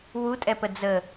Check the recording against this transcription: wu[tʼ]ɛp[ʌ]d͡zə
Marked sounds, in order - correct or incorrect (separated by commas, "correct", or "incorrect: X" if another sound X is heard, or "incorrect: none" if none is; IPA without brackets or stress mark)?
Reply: correct, incorrect: ə